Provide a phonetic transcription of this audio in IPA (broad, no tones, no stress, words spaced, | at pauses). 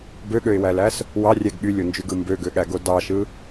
bøɠøɪ̯wælæs | wɑrʲæɡ ɠylʲond͡ʒyɡɯ mbøɡøɠæɡo dɑʃɯ